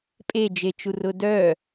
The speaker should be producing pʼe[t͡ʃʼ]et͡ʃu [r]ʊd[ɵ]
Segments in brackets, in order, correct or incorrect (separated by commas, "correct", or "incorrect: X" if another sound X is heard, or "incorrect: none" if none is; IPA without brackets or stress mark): incorrect: d͡ʒ, correct, incorrect: œ